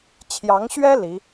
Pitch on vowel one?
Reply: rising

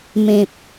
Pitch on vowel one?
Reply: low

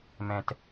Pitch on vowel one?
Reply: high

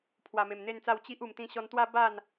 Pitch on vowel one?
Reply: low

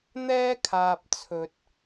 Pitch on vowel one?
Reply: high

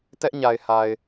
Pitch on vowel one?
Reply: high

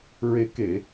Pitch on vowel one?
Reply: rising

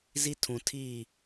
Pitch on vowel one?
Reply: high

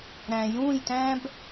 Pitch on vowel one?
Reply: low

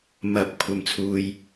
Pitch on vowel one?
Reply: rising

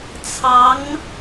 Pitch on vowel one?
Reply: rising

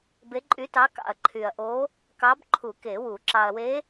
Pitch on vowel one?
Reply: rising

